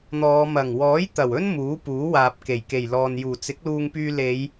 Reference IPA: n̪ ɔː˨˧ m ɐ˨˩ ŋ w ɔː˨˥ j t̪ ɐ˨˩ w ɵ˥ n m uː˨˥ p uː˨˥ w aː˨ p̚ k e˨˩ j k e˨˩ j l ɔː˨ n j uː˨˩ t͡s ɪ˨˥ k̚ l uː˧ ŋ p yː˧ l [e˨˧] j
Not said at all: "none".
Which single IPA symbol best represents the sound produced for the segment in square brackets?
e˨˧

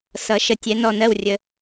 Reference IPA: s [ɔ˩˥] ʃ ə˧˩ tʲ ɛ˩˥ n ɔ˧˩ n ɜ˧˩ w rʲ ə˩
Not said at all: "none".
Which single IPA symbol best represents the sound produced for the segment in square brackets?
ʌ˩˥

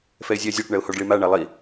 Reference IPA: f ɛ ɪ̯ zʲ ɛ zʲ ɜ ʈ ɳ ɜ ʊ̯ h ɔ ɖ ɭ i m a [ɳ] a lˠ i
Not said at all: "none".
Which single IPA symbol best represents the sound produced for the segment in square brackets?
ɳ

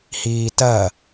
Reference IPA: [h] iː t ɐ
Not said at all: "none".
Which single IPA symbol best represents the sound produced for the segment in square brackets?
h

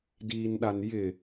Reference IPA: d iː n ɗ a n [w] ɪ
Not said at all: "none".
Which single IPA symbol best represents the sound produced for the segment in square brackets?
j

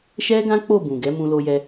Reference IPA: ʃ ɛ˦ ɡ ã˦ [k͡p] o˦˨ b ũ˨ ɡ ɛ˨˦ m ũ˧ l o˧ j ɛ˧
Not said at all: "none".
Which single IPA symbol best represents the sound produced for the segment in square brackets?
k͡p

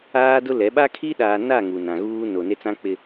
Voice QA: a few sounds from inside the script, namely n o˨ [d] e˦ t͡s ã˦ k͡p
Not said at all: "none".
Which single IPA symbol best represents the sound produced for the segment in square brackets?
n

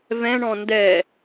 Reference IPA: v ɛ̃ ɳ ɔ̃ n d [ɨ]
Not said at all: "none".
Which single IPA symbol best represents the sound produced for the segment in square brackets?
ɛ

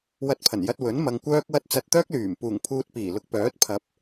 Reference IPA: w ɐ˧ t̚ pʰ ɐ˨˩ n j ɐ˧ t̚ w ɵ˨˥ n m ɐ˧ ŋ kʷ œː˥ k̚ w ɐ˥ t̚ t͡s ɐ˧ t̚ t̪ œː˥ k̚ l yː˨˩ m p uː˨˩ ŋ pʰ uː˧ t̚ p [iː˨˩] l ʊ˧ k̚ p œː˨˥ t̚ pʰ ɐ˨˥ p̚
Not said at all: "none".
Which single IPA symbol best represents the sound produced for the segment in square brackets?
iː˨˩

